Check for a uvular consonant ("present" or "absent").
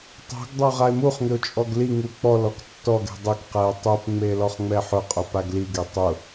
present